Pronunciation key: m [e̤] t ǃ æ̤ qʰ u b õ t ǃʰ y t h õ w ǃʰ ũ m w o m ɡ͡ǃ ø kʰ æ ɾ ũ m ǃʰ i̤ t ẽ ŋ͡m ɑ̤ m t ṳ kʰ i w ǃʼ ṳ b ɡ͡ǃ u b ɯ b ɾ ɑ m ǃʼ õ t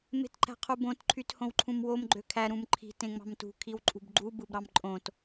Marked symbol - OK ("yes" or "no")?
yes